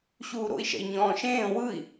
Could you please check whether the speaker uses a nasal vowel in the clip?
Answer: yes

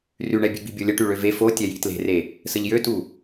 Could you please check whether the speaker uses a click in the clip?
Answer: no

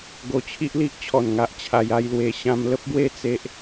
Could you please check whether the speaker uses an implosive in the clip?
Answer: no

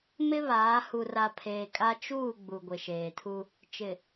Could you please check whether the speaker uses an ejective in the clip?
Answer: yes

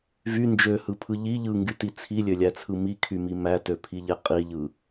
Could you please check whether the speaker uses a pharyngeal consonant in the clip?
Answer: no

